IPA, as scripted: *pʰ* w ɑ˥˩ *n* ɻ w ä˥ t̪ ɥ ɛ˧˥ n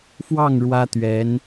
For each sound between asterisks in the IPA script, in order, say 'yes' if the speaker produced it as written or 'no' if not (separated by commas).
no, no